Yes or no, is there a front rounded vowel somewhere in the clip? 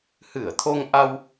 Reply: no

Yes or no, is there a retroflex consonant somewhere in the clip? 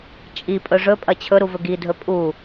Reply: yes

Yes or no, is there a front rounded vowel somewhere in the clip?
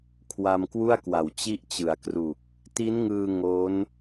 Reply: no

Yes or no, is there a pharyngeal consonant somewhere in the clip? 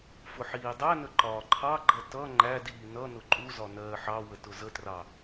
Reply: yes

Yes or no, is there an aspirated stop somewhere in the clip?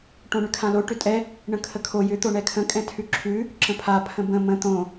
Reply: yes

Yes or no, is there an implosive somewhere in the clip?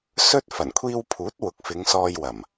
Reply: no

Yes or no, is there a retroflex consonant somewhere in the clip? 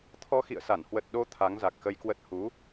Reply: no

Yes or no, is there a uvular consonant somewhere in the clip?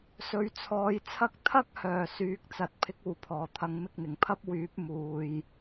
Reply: no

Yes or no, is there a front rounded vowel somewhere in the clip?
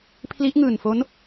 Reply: no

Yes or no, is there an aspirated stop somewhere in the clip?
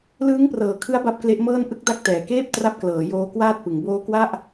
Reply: yes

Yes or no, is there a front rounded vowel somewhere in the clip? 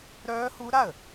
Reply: yes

